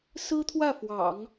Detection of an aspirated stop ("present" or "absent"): present